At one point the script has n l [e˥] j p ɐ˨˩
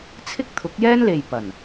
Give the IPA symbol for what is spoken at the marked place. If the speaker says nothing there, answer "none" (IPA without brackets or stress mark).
e˨